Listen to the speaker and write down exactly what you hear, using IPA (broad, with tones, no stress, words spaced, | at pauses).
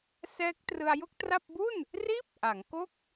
sɛː˦˥k̚trɯ˧a̯ jo˥˩k̚tra˥˩p̚ bu˥˩n | riː˥˩p̚ʔa˩˦ŋko˥˩k̚